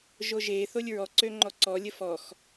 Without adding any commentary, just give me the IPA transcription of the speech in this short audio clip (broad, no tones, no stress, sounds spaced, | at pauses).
ʒ o ʒ e θ o lʲ ɹ ɔ ǀ ø ŋ͡ǃ ɔ ǀ ɔ lʲ ə f ɔ x